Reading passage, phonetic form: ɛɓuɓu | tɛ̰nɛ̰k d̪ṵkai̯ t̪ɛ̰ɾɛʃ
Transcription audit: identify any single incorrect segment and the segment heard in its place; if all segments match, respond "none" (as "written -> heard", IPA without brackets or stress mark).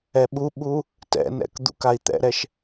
none